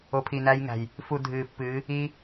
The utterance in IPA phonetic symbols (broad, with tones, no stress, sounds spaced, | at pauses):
o˨ pʰ i˨ n æ˧ j ŋ æ̤˨ j | f u˨ dʱ ɨː˨ pː ɨː˨˦ | iː˧